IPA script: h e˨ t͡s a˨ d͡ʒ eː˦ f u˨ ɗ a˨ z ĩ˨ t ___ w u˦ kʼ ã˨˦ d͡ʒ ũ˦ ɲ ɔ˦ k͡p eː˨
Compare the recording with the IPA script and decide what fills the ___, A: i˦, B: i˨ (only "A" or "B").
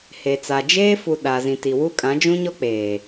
B